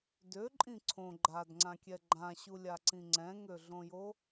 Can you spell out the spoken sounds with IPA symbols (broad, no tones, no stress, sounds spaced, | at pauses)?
d ø ǃʼ ĩ ǀʰ õ ɡ͡ǃ a d ŋ͡ǀ ã kʲ ɛ ɡ͡ǃ ã ɕ u lʲ a ǀ ĩ ŋ͡ǀ ɛ̃ ŋ ø ɮ õ j o